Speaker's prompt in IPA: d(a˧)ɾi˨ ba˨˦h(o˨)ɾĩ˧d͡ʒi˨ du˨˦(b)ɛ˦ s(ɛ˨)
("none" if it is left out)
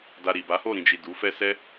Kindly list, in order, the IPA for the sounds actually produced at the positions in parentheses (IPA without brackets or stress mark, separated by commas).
a˧, o˦˨, f, ɛ˦